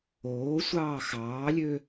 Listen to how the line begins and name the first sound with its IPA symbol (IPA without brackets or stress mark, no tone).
oː